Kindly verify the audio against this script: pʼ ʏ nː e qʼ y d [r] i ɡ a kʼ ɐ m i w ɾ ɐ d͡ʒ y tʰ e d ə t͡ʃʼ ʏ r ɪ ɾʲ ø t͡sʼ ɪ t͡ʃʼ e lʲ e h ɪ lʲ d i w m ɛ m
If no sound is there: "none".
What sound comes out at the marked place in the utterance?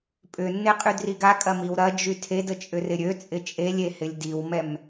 r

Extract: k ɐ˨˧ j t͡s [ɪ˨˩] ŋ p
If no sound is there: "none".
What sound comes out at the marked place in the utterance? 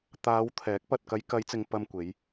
ɪ˨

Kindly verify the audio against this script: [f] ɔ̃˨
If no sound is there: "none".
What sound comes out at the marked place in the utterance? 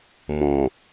m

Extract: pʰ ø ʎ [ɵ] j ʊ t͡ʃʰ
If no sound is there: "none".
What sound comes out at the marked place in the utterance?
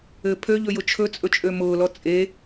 ɵ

